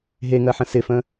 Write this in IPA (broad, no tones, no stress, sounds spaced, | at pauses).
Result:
ɦ e ŋ ɜ ħ ə̃ s ɪ f ə̃